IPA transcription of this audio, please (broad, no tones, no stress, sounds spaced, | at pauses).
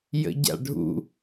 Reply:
j ə̰ ɟ a̰ ɖʱ ṵ